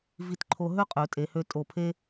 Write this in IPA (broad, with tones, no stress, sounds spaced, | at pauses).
v i˧ t ǃʰ o˧ ɦ ø˥ qʼ ø˩˧ tʼ e˩˧ h ø˧ tʼ o˧˩ pʰ e˥